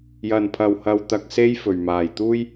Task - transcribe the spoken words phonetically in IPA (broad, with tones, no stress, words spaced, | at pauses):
jɐ˨˩npʰɐ˨˩whɐ˨wt̪ɐ˨k̚ se˧j fɵ˨˩ɥmaː˨˩j t̪uː˥j